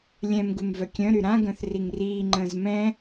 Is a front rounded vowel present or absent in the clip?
present